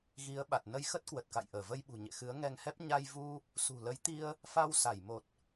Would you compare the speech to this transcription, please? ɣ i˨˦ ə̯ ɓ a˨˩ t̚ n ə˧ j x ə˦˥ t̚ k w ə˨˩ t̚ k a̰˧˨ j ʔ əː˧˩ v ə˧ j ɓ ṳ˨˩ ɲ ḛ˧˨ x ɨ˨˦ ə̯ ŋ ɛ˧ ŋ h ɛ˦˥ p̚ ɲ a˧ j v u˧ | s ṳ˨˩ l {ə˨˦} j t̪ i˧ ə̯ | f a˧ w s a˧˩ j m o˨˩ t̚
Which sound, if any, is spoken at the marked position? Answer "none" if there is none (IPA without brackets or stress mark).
ə˨˦